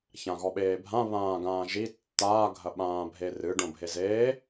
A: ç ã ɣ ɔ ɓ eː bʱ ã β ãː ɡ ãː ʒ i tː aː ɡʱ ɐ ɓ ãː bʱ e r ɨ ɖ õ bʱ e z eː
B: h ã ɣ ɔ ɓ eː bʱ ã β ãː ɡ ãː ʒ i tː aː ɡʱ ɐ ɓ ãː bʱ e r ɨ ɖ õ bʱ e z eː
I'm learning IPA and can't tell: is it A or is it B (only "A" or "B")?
A